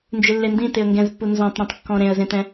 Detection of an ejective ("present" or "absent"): absent